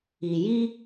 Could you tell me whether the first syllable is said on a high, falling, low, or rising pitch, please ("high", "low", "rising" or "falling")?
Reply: low